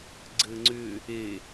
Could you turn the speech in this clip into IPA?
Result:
ɡ͡ǀ ɘ ŋ͡ǀ ʏ | e

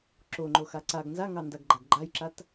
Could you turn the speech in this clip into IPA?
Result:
ǁ o ŋ͡ǃ o x a ǀ a ɡ n z a ŋ ɑ n d a ɡ ɡ͡ǃ a ɡ ɡ͡ǃ a j ǁ a t

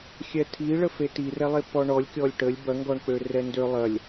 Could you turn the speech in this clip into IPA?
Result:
xʲ ɛ tʰ i ɭ ə f e t i r ɛ lˠ e p ɔ ɳ ɔ lʲ kʲ ɔ lʲ ʈ ə lʲ b ɐ ŋ ɡ ɔ ɳ k͡p ø r ɛ n d ø lˠ ɐ lʲ

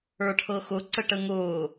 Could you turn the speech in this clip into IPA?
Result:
ə˞ ʈʰ ɤ x ʊ ǀ ə ʈ ə ŋ ʊː

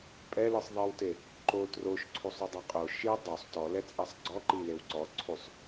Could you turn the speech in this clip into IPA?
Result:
pʼ ɛ l ɯ sˤ ðˤ i w t e | ǃ o t r o ʃ ǀʰ u sˤ u dˤ a qʼ o ʃ i dˤ o sˤ t ɔ l ɛ t͡sʼ a sˤ ɡ͡ǀ ɔ ǃ i l e w ǀ ɔ ǀʰ u sˤ

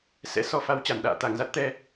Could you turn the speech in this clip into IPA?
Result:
s ɛ̰˧˥ s ɔ˨˦ f a˨˦ w t͡ɕ a˧˩ n ɗ a̰ː˧˨ t̪ a˧˩ ŋ z a˦˥ t̚ t̪ ɛ˧

